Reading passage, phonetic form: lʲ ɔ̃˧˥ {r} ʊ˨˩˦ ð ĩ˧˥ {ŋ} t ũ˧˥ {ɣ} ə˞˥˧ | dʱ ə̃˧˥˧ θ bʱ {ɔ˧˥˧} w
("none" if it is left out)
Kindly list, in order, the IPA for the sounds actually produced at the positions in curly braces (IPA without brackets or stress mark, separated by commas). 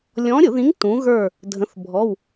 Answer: ɾʲ, ŋ, ɣ, ɔ˧˥˧